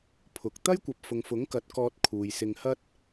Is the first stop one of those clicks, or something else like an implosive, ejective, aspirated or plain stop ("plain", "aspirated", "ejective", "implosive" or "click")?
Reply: aspirated